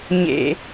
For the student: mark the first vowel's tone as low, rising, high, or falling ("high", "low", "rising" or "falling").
high